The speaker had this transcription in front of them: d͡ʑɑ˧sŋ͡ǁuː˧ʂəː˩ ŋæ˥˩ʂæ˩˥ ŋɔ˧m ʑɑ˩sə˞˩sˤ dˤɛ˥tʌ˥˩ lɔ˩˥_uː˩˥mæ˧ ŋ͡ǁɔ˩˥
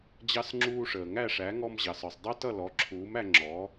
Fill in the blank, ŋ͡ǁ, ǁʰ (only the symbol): ǁʰ